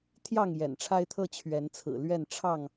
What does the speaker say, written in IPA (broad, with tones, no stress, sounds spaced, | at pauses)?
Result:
t̪ʰ j ɑ˥˨ ŋ j ɛ̰˨˩ n ʈ͡ʂʰ a˦ ɪ̯ t̪ʰ ɤ˦ t͡ɕʰ ɥ ɛ˨˦ n t͡sʰ ɹ̩˨˩ l ɥ ɛ˥˨ n ʈ͡ʂʰ ɑ˥˨ ŋ